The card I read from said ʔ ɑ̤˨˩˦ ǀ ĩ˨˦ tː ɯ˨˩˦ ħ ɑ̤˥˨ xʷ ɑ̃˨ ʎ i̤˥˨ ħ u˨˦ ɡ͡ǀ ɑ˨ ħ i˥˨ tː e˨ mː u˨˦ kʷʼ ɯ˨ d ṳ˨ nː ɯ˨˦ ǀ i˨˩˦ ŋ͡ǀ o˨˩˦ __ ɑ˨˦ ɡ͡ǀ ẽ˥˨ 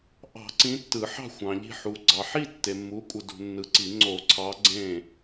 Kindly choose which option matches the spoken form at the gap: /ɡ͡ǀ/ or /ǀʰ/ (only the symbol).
ǀʰ